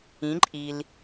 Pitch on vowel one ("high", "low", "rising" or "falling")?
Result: rising